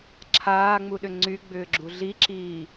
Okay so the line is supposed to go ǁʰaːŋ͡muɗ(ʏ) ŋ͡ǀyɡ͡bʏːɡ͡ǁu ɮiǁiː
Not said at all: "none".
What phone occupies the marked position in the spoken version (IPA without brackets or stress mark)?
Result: ʏ